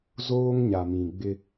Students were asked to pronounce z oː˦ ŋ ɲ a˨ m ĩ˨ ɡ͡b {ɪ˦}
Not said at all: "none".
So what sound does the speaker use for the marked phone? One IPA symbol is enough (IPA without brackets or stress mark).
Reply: ɪ˦